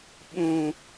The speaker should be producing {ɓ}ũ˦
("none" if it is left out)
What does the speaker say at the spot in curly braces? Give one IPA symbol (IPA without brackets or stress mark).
ɓ